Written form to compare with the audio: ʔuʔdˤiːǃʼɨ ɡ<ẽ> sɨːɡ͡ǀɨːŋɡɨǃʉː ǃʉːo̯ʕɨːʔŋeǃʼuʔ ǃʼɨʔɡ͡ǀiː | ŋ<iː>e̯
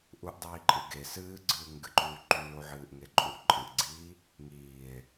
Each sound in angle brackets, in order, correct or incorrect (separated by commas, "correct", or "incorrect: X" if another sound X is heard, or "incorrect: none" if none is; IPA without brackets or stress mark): incorrect: e, correct